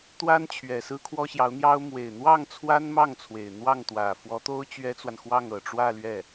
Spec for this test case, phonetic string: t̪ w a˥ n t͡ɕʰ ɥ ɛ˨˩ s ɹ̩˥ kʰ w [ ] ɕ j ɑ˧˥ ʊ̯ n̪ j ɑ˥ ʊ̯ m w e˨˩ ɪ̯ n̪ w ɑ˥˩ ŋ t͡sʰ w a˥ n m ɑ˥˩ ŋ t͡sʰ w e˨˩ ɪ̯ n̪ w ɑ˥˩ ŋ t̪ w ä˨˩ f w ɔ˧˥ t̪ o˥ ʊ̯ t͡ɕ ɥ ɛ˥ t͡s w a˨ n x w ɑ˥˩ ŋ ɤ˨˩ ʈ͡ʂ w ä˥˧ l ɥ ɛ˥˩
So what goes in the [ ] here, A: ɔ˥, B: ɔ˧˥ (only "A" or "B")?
A